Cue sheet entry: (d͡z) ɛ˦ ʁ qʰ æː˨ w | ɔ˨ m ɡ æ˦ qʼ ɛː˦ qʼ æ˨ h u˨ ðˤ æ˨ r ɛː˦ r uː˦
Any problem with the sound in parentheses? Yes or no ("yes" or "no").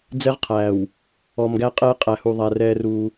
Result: no